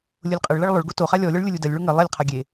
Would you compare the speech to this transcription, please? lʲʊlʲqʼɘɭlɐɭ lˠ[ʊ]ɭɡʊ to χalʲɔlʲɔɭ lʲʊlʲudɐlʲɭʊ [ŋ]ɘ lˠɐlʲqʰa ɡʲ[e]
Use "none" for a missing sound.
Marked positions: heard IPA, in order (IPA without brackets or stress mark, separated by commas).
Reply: ʊ, ŋ, e